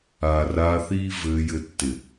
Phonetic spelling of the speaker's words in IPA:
aː˨ r aː˧ θ iː˦ v ɘː˧ j ɘ˧ tː ɪ˨

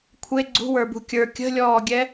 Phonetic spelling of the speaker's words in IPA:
kʷʰ e ɡ͡ǀ ṳ w ə˞ b ṳ kʲ ə˞ kʲ ə̤ lʲ ɔː ɡʲ ɛ

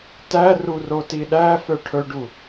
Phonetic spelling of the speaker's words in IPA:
t æ r u r o t i ɗ æ f œ ʈʰ ɵ ɖ u

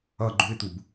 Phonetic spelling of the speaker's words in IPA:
ʌ ɡ͡ǃ u ɪ̯ t̪ u b

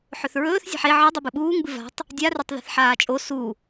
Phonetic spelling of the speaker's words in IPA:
ħ ɵ θ ɹ ɵː θ zʲ a̤ ħ e ʕ ɨ dˤ ɨ b ɨ ɓ uː ŋ b ɨ v a̤ tˤ | dʲ a r e tˤ ð i̤ θ ħ aː t͡ʃʼ o s u

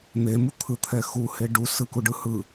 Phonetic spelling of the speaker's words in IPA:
n̪ e m u t̪ʰ ɯ t̪ʰ ɛ x u h e ɖ u s ɯ k u ɖ ɯ h ɯ

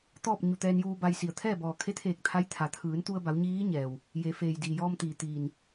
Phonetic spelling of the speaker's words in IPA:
t̪ ɔː˥˨ p̚ ɲ u˧˩ t̪ ɛː˧ n j uː˧ b a˧ j s i˧˩ ə̯ t̪ʰ ɛː˥˨ b ɔː˧˩ kʰ e˧˥ t̪ʰ eː˧˩ k̚ t̪ʰ a˧˥ j t̪ʰ a˩ t̪ʰ ɯː˩˧ n t̪ u˧ ə̯ b a˩˧ w ɲ iː˧˥ ɲ ɛː˩ w | j e˩˧ f eː˩ j d iː˩ j ɔː˧ m t̪ iː˩ t̪ iː˧˩ n

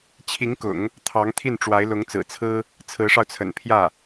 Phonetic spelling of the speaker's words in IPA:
t͡ɕʰ i˧˥ ŋ k ʊ̰˨˩˦ ŋ | t̪ʰ ɑ˧˥ ŋ t̪ʰ i˥˩ n ʈ͡ʂ w a˧˥ ɪ̯ l ʊ˧˥ ŋ t͡s ɹ̩˨˩ t͡sʰ ɹ̩˥ | t͡sʰ ɹ̩˧˥ ʂ ɑ˧ ʊ̯ t͡sʰ ə̰˨˩ n pʰ j ä˥˩

